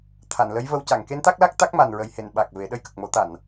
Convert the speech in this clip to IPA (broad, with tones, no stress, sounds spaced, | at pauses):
t̪ʰ a˨˩˨ n l ə˧˥ j v ə˧ w c a˨˩˨ ŋ k e˧˥ n t̪ a˦˥ k̚ l a˦˥ k̚ t̪ a˦˥ k̚ m a˨˩ n ɹ ə˨˩ j h e˨˩˨ n ɓ a˨˩ k̚ v e˨˩˦ ɗ ə˧ j k ə˨˩ k̚ m o˨˩˦ t̪ a˨˩˨ n